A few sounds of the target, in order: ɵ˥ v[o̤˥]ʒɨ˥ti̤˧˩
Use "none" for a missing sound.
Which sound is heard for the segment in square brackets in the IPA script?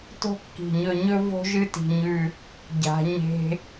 o̤˥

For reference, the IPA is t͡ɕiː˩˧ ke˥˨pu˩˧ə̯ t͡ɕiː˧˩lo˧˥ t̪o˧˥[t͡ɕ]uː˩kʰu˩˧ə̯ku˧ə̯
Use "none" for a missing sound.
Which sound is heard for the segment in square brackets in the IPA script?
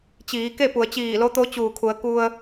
t͡ɕ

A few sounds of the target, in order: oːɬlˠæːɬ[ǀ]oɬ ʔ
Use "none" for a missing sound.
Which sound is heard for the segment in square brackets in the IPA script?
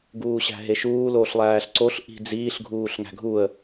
ǀ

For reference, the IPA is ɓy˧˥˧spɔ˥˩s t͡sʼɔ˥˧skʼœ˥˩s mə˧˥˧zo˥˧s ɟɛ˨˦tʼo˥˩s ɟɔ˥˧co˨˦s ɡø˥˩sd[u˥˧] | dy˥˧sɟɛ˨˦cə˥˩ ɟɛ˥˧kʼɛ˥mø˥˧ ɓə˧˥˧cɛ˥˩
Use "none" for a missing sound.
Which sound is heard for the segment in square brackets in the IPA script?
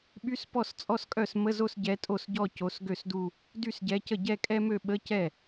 u˥˧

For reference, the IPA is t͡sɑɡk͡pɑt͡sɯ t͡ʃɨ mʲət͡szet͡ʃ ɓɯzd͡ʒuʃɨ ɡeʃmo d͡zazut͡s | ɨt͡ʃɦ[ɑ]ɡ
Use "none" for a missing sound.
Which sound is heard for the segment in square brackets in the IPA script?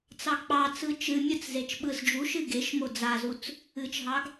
ɑ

